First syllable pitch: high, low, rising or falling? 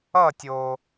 falling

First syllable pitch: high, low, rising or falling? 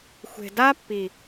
low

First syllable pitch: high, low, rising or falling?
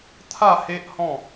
falling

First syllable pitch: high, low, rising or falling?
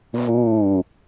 falling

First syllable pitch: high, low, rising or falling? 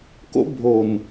high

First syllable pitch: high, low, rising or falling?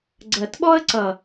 low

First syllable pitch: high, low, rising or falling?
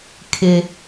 high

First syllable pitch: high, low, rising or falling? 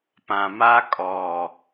low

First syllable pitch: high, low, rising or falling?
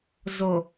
low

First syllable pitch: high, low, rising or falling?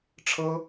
high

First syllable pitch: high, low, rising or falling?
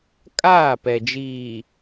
falling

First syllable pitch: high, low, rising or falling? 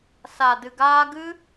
low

